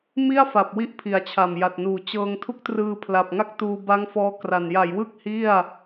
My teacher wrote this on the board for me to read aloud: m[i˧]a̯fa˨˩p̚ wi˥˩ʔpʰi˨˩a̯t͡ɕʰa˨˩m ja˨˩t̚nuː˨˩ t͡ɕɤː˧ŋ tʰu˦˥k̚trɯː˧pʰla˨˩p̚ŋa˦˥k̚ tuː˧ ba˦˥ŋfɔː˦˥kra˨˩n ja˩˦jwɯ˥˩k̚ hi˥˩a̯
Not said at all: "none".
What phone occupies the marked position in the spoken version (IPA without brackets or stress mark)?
i˥˩